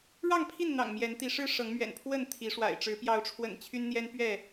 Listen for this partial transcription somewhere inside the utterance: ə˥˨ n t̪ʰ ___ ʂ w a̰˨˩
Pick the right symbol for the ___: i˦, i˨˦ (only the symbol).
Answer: i˨˦